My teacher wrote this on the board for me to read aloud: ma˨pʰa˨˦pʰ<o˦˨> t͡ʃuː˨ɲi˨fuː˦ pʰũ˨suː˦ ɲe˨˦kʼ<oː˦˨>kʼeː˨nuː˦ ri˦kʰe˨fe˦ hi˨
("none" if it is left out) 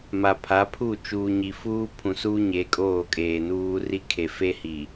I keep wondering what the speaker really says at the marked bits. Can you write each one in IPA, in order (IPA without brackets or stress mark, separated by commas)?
u˦˨, oː˦˨